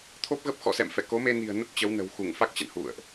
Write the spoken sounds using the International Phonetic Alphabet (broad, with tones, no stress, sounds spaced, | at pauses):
t̪ʰ o˦˥ p̚ ɣ ə˦˥ p̚ x ɔ̰˧˨ s ɛ̰˧˨ m f ɛ˧˩ k o˨˦ m e˧ n i̤˨˩ ə̯ n ə˦˥ p̚ t͡ɕ ə˨˦ w n ə̤˨˩ w x u˧˩ ŋ f a˦˥ k̚ t͡ɕ ə̰˧˨ n h ṵ˧˨ ə̯ ʔ